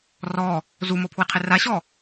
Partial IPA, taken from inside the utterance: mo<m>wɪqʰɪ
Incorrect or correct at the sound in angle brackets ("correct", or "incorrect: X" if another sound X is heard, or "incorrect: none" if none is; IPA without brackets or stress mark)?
incorrect: pʰ